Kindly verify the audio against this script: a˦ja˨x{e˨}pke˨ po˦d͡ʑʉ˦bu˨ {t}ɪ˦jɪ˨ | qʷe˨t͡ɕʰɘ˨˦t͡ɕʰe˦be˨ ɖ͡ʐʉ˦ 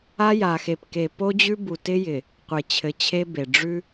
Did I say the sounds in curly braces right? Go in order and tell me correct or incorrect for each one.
correct, correct

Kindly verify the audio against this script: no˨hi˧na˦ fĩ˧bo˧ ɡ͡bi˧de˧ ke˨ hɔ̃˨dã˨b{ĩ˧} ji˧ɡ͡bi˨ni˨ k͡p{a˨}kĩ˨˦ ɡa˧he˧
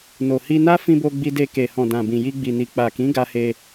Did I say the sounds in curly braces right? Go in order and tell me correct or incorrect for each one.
incorrect: ĩ˨, correct

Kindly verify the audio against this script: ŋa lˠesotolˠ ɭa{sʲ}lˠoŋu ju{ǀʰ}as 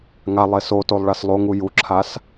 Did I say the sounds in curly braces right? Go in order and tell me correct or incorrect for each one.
incorrect: s, incorrect: ǁʰ

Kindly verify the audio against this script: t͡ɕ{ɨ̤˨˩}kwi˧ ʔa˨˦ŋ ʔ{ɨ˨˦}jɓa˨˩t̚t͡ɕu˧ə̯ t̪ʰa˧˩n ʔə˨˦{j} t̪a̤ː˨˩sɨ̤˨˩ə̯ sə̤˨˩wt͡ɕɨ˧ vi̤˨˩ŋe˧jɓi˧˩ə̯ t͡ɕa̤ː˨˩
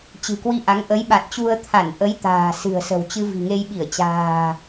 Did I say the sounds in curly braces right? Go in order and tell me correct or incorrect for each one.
correct, incorrect: ə˨˦, correct

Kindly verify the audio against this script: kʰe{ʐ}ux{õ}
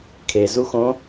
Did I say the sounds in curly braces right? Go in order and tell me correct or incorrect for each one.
incorrect: z, correct

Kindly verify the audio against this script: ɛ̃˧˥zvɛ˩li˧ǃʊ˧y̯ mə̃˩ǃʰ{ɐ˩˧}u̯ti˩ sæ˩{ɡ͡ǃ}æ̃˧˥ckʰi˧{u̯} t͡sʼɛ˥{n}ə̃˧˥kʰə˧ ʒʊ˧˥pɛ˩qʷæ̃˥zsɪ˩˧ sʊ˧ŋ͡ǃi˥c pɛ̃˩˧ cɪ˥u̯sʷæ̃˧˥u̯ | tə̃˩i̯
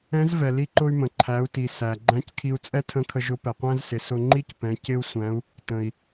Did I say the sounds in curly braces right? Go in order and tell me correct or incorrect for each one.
incorrect: æ˩˧, correct, correct, incorrect: tʰ

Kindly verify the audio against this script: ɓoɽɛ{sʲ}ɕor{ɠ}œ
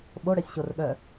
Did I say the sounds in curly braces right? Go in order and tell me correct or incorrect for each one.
correct, correct

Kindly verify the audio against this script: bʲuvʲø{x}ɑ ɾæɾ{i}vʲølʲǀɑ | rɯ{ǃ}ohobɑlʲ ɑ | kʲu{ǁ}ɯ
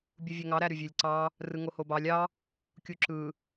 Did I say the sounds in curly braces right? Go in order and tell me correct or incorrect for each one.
incorrect: ŋ, incorrect: y, incorrect: ŋ, correct

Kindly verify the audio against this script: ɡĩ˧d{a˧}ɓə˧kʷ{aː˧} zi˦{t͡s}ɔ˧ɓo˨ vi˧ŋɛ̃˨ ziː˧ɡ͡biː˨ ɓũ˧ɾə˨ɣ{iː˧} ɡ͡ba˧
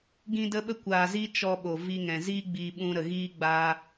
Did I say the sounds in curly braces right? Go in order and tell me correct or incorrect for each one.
incorrect: ə˧, incorrect: aː˨, incorrect: t͡ʃ, incorrect: iː˦

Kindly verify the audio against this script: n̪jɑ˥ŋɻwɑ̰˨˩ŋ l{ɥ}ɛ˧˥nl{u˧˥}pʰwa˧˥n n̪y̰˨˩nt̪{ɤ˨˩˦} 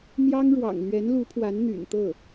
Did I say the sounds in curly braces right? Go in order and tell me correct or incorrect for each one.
correct, correct, incorrect: ɤ˥˩

